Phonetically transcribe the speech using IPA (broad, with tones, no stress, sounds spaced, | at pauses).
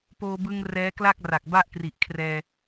p oː˧ b ɯ˧ ŋ r ɛː˦˥ k l a˥˩ k̚ r a˨˩ k̚ b a˥˩ ʔ k r i˨˩ ʔ kʰ r ɛː˧